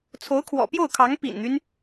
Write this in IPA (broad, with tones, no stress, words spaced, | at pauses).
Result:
t͡sʰo˧˥ʊ̯kʰwɔ̰˨˩pjo˥˩ʊ̯kʰɑ˧˥ŋ pḭ˨˩nn̪y˦n